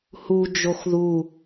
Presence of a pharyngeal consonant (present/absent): absent